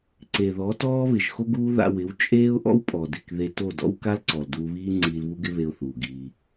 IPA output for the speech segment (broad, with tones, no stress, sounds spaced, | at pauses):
ǀ e˨ ð ɔ˨˦ t ɔː˦ β ɪ˨ ʒ x o˦ ɡ uː˦ ð a̰˧ w ɪ˨˦ w t͡ʃʼ eː˦ ʊ̯ ʔ ɔ̰˦ w pʼ ɔ˨ d ɪ˨ k ð e˧ t o˦˨ d ɔ̰˦ w k a˦ l ǀ ɔ˨ l d uː˧ β iː˦ ŋ͡ǀ iː˧ l β u˦ ɡ ɪ˦ β e˧ ʊ̯ θ uː˨ ɡ iː˧